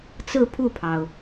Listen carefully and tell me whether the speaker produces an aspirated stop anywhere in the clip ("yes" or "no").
yes